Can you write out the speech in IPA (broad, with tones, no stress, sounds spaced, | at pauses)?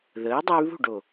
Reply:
ð əː˨˥ dˤ ə˦ y̯ β ṳ˥˨ ɖ o˩